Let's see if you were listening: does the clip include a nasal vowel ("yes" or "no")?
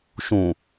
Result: yes